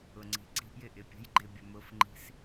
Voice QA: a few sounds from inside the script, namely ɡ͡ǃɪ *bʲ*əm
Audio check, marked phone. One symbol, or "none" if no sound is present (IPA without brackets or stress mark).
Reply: bʲ